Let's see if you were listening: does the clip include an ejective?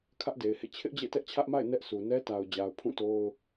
no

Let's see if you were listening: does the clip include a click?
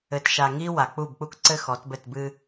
yes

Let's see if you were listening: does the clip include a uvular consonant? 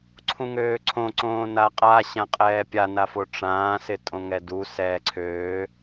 yes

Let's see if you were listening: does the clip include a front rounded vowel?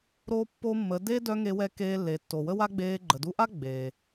yes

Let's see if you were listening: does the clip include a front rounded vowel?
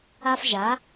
no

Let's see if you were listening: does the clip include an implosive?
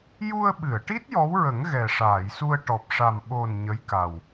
yes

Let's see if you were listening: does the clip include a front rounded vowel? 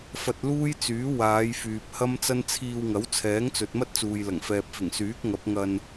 yes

